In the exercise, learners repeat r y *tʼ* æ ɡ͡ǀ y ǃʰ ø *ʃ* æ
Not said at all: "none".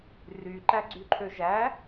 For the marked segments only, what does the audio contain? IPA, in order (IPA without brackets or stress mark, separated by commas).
ǃ, ʒ